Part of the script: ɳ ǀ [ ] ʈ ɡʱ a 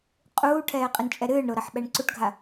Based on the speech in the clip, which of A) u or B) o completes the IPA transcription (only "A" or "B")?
A